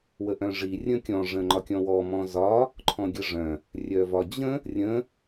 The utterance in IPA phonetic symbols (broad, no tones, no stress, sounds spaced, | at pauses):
w ə ʔ œ̃ ʐ i rʲ ə̃ kʲ ɔ̃ ʐ ə̃ ŋ͡ǃ ɒ kʲ ɔ̃ w ɔ m ɔ̃ z ɒ | ǃʰ ɔ̃ ɡʲ ə ʐ œ̃ | rʲ œ v ɒ d͡ʑ ə̃ | rʲ ə̃